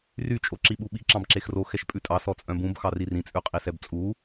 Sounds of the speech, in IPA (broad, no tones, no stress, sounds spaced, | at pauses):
r y t͡ʃʼ o ǁ i ɓ u ɓ i ǁ ɑ̃ b ǁ e x r o x ɛ ʃ pʼ ʉ tʼ ɑ s ɔ t͡sʼ œ̃ b ũ b x ɑ r i r ĩ t͡sʼ ʉ qʼ i s ɛ b t͡sʼ u